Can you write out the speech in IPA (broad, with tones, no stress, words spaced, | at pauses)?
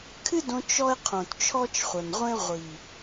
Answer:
kʰɨ˦dõ˧ t͡ʃɔ˦e̯ qʰõ˨tt͡ʃʰɔ˦t͡ʃχʷɐ˨nʁʷẽ˦ ʁʷi˨